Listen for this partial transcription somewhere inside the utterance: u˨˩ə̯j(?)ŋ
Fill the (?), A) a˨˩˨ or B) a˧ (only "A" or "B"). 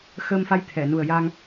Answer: B